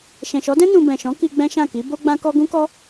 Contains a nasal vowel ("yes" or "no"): yes